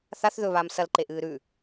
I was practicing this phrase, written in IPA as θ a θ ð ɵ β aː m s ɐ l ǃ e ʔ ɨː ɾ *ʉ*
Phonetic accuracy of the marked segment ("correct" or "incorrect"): correct